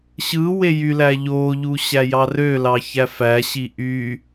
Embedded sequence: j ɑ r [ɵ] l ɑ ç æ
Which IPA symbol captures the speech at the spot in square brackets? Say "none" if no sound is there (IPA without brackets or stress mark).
ø